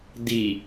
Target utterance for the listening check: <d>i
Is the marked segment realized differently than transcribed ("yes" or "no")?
no